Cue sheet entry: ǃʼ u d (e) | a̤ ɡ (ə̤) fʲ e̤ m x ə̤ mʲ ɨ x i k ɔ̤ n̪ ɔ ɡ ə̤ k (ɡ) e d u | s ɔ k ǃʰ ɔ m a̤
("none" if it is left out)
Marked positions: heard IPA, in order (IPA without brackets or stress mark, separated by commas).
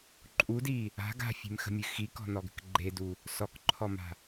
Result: i, a̤, ɡ͡ǃ